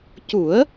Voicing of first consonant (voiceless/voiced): voiceless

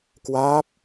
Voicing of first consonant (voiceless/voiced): voiceless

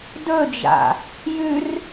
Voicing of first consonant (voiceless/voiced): voiced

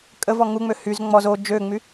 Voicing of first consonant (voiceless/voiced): voiceless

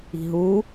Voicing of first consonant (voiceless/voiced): voiced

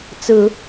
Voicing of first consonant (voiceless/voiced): voiceless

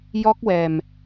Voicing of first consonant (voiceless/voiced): voiced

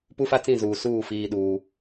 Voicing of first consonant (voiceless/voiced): voiceless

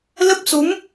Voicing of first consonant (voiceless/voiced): voiced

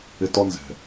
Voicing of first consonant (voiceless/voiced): voiceless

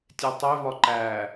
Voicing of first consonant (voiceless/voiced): voiceless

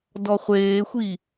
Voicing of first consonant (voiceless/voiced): voiced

